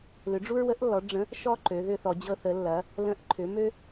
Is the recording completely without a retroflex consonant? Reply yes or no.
no